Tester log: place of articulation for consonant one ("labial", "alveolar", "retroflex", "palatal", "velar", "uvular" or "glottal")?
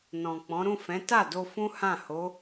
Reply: alveolar